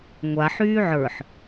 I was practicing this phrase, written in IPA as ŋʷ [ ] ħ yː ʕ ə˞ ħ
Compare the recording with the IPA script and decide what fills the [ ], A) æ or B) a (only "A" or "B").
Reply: B